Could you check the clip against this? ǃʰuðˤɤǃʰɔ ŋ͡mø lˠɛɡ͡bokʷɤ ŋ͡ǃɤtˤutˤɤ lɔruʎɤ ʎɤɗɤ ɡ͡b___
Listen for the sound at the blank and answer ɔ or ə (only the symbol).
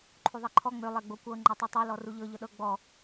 ɔ